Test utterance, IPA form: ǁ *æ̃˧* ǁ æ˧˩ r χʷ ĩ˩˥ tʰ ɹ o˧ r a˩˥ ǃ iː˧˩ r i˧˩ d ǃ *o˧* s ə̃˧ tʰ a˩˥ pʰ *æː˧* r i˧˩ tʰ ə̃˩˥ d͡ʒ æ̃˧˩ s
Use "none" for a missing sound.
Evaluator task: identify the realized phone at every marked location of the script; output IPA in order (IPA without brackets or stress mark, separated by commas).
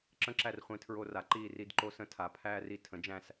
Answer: ə̃˧, o˧, æː˧